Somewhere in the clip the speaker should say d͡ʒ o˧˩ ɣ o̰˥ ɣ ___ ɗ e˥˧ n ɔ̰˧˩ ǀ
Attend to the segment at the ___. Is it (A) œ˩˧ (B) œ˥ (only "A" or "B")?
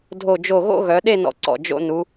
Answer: A